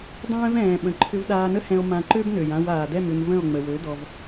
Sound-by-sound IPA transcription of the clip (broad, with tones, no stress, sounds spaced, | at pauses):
dˤ ɛ̃ː˦ v ɛ̃ː˨ ɓ ə̃˨ ǃʰ ʏ˧ v ɗ aː˧ n ə˦ h ɛ̃˧ o̯ m ã˧ ǃ ø˦ b n ø˨ j ã˧ w aː˨ d ɛ˦˨ m ʏ˧ m v ə̃˦˨ o̯ ŋ͡m ə˨ w ø˨˦ d ɔ˧ v